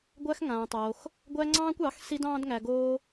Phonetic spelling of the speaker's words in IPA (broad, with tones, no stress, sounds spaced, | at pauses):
ɡʷ æ˦ x ŋ ãː˧ tˤ oː˧ x | ɡʷ æ˦ ŋ͡ǀ ɑ̃ː˦ kʷ ɑ˨˦ x s i˦ d ɑ̃ː˦ d ŋ æ˧ ɡ oː˦